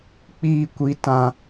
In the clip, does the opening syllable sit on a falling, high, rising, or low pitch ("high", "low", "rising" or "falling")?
high